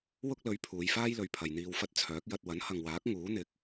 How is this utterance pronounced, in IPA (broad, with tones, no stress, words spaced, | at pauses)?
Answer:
wʊ˥k̚lɵ˨˥ɥ pʰuː˨˧jfaː˥jlɵ˨ɥpʰɐ˨j n̪iː˨wfɐ˧t̚ t͡sʰœː˨˥k̚jɐ˧t̚ wɐ˨˥nhɐ˨ŋwaː˨˥k̚ ŋuː˨˥n̪ɪ˨˥k̚